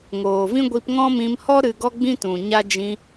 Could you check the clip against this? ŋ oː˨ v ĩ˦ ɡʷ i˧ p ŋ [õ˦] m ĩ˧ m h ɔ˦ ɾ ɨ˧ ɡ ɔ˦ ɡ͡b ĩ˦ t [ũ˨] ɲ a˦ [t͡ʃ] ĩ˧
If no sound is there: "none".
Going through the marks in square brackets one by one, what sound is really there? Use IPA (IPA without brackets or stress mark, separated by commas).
ɔ̃˦, ũ˨, d͡ʒ